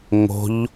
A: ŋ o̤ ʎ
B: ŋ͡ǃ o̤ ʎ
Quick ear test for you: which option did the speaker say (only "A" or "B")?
A